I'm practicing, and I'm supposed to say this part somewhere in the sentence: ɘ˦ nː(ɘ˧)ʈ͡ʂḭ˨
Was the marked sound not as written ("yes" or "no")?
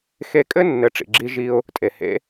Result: yes